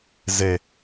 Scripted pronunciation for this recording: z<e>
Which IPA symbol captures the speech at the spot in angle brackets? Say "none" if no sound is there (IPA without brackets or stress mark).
e